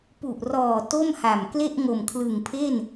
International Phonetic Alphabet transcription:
pu˨˩ʔrɔː˨˩ to˥˩mha˨˩m kle˥˩ʔŋo˨˩mkʰlɯ˨˩ŋpʰe˥˩n

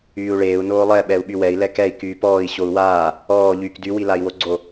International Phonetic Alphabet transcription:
yːu̯ɭeːu̯ noːlˠɛ ɓɛu̯ɓywɛi̯ lɛkɛi̯ kyːpɔːi̯ ɕou̯waː | ɔː ʎyːkdy wilai̯woɡ͡ǀo

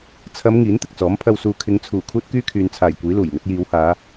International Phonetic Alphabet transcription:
t͡sʰɐ˨˧m ŋiː˨˥nt̪ɪ˨k̚t͡sɔː˨˥m pʰɐ˨wsuː˨ kʰɪ˨˧ŋt͡sʰuː˨˩ kʰuː˥t̚kyː˥kʰyː˨nt͡sʰaː˨˩j kʷiː˨˥luː˨˩jŋɵ˨˥t̚ jiː˨˧whaː˨˧

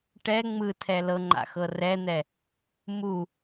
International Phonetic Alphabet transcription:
ʈɛ ŋ͡mɯtʰɛ lɤŋ͡ǃa̰xɤ rɛn̪ɛ | mu

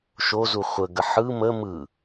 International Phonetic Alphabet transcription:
ʃozu χʷəɡə ħɯ mə mɯ

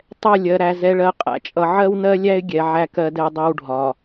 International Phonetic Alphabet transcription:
tˤɛ˦˨lʲɜ˨ɾæ˨ zɛ˨ɭɜ˨qʼæ̰˨t͡ʃʼʌ˨ ʕɜ˦wnɜ˦lʲæ˦ɪ̯ ɡʲɛ˨ ʕæ˦kɜ˦dɛ˦ dˤɜ˦wɖʱɒ˨

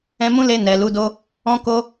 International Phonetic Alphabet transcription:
ɛ̃˧mũ˦le˧ nɛ˨lu˨˦do˦ | ɔ̃˦ko˦

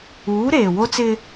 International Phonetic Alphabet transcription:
uː˨˦ɾeː˨wo˦t͡sɪ˦

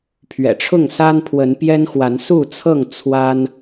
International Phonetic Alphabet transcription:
pʰɥɛ̰˨˩ʈ͡ʂʰʊ˥˨ŋsa˦npʰwə˨˦n pjɛ˦nxwa˨˦nsu˥˨t͡sʰɤ˥˨ŋ t͡sʰwa˦n

